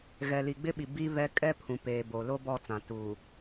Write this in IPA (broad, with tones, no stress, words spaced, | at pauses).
ɣɛ˨li˨ɡ͡bɪ˦ɓi˨ bi˦βɛ˦ kʼɛ˦ pʰũ˨peː˨bo˨ lo˦bɔ˦˨t͡sã˨ tuː˨